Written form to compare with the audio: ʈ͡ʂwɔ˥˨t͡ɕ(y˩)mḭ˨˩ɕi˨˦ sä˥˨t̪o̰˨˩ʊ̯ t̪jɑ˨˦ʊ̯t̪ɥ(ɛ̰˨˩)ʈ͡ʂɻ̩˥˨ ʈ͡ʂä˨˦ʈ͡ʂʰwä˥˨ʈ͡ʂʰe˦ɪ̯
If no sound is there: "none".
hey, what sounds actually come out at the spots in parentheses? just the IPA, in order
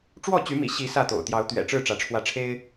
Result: y˨˦, ɛ̰˨˩

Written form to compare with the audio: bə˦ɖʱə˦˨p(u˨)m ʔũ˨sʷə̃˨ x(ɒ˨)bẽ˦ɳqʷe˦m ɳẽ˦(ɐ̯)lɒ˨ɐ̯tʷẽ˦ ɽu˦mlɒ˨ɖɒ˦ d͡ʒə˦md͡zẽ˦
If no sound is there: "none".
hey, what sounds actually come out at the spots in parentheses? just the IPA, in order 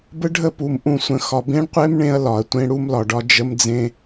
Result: u˨, ɒ˨, ɐ̯

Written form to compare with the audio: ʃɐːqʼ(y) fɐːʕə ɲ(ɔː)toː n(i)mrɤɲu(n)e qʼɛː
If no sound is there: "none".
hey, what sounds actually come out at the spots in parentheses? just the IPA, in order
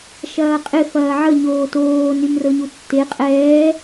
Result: ɪ, oː, y, tː

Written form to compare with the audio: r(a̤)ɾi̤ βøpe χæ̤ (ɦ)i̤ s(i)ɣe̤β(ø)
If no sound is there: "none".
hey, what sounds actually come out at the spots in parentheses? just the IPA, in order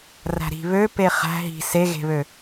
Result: æ̤, ɦ, e, ø

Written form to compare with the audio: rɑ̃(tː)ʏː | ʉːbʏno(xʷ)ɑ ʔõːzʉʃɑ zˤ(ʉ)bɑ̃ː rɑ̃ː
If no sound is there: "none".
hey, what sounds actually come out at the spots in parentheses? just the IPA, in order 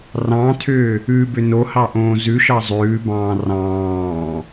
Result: tʰ, h, ʉː

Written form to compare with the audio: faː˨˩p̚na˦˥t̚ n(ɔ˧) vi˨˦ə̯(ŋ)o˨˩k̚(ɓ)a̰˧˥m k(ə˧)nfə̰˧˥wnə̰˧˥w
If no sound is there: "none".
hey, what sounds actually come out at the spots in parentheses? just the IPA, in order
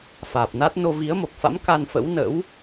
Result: o˧, m, f, a˧

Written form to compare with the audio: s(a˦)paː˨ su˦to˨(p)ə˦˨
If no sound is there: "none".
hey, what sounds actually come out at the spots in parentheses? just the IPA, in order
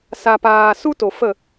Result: a˨, f

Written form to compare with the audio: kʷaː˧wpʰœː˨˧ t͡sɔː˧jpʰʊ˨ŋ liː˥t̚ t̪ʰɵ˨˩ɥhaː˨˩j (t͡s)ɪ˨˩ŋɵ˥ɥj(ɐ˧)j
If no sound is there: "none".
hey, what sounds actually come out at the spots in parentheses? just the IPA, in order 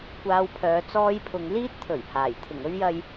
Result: t̪ʰ, ɐ˧

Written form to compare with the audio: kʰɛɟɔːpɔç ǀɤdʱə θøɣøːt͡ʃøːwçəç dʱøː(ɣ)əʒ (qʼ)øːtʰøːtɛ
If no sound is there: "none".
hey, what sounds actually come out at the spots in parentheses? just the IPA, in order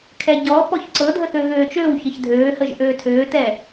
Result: h, ʔ

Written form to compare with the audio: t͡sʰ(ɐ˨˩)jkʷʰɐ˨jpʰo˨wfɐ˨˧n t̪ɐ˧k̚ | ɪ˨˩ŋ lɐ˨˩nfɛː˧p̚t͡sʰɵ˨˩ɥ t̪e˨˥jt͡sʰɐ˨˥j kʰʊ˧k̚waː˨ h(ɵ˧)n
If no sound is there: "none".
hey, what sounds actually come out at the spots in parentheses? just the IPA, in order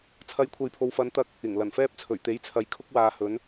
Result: ɐ˨˥, ɵ˨˧

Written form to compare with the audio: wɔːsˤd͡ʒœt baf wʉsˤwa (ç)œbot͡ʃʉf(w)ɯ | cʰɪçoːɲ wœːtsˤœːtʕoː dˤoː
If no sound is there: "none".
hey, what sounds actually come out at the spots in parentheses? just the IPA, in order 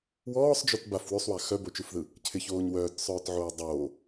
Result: x, ð

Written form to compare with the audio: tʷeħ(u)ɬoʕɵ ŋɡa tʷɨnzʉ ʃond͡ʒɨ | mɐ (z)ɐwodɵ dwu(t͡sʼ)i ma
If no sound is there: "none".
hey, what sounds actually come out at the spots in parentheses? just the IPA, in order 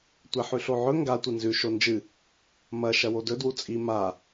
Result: ʉ, ʃ, t͡sʼ

